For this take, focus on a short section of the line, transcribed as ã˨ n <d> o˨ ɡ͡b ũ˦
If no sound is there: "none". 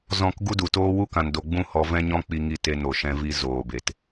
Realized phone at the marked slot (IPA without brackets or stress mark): d